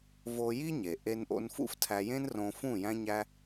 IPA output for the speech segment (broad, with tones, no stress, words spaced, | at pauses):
vo˧ji˦ ɲe˨ ʔe˧nʔo̰˧nfṵ˦f tʰæ˧jẽ˦nrõ˧fũ˦˨ jæ̃˦ɲæ˦